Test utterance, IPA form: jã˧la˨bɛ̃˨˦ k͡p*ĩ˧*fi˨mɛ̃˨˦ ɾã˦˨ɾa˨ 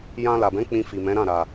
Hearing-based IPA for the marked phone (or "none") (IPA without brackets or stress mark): ĩ˧